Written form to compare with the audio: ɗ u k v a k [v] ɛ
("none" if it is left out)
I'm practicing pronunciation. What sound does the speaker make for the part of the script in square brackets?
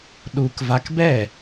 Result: b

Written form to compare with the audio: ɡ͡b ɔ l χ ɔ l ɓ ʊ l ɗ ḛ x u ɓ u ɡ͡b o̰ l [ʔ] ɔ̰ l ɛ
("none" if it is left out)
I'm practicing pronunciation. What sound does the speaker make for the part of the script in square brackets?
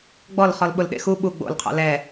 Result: qʰ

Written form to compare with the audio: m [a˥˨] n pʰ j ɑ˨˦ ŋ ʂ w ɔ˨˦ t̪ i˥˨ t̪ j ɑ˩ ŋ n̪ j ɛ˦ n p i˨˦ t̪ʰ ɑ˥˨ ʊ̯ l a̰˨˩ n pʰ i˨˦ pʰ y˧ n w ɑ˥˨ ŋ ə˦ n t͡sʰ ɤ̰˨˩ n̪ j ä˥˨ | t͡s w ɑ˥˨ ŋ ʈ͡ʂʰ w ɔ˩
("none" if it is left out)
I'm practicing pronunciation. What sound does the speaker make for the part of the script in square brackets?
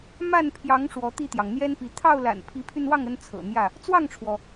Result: a˥˨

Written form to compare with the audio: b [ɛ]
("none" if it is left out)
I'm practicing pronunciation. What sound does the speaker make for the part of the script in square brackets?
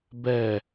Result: ɛ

